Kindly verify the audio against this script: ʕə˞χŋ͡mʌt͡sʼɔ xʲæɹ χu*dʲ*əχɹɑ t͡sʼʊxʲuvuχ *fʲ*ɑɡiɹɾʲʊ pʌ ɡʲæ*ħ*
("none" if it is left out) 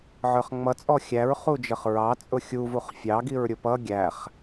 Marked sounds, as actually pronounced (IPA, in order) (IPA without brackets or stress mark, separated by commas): d͡ʒ, fʲ, χ